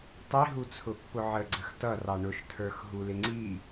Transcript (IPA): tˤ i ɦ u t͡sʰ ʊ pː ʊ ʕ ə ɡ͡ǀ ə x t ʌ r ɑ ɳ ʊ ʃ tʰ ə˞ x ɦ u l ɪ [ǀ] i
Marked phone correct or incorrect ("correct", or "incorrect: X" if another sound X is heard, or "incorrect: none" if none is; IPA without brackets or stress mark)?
incorrect: ŋ͡ǀ